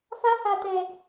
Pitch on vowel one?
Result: high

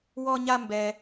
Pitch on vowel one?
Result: high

